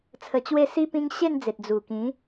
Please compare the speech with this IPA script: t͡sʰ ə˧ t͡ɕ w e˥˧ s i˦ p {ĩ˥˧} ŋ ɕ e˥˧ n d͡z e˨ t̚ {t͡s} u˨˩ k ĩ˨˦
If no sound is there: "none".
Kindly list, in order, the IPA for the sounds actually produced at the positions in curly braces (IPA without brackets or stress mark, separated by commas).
ĩ˦, d͡z